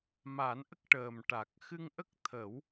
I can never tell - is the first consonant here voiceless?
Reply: no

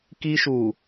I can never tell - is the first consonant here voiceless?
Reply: yes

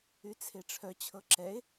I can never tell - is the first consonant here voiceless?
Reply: yes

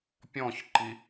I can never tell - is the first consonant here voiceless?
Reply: yes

